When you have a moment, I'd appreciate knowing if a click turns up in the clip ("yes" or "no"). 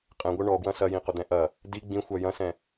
no